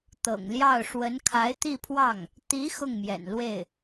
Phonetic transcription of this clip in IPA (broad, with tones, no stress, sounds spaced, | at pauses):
t̪ ɤ̰˨˩ ŋ l j ɑ˥˩ ʊ̯ ʂ w ə˧˥ n kʰ a˧˥ ɪ̯ t̪ i˥˧ pʰ w ɑ˥˩ ŋ | t̪ i˧˥ x ʊ˥˩ ŋ m j ɛ̰˨˩ n l w e˥˩ ɪ̯